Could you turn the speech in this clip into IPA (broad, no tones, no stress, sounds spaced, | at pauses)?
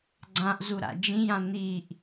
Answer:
ɡ͡ǀ ã ʔ z u ɾ a̰ d͡ʒ ĩ j ã n̪ i ʔ